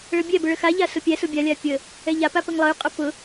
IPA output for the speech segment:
ɭɤbʲɛbʊ ɭəxaʎa sʊpʲæsʊ bʲalʲa pʲə | ɛʎapa pəŋlˠɤy̯qʼʊ pʊ

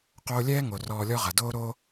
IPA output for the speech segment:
qoː˧lʲɛː˥ ŋo˩rɔː˧lʲɔ˥ʁɐ˩ doː˥ɾoː˥

